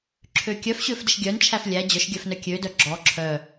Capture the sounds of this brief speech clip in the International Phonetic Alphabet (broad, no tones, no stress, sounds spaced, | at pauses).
ǁʰ ø kʲ œ f ɕ ø f d ə ʃ ɡʲ œ n t͡ʃʰ æ f lʲ æ d͡ʑ œ ʃ ɡʲ œ f n œ kʲ ø d œ ɡ͡ǁ ɔ ǁʰ œ